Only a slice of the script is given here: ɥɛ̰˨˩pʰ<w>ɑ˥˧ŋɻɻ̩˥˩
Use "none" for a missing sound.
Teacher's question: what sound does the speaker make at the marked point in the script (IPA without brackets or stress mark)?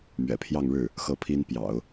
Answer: j